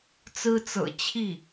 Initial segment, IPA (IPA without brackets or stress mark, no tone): t͡s